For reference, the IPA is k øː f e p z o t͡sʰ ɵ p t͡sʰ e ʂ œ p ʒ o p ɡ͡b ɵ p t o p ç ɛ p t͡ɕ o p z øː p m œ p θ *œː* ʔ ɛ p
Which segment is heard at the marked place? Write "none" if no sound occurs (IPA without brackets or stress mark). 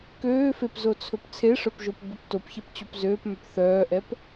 œː